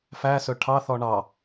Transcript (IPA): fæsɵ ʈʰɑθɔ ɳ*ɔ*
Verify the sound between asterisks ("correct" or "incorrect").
incorrect